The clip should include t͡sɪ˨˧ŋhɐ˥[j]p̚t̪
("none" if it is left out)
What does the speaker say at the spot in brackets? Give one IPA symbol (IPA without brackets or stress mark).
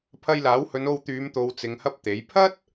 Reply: none